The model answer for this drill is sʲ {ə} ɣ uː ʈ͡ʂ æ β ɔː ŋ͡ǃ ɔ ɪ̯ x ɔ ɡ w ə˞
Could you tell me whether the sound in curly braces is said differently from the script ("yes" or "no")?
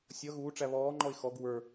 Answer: yes